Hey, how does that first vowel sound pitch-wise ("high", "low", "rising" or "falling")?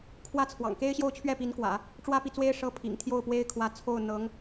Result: high